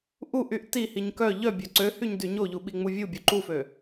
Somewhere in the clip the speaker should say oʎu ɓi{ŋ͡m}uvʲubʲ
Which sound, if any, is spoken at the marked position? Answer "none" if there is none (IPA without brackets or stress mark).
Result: ŋ͡m